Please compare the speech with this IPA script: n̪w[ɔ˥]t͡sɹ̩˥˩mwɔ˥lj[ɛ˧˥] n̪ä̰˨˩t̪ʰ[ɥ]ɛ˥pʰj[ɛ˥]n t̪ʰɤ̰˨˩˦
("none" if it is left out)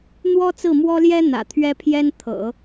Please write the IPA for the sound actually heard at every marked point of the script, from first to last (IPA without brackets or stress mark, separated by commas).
ɔ˥, ɛ˥, ɥ, ɛ˥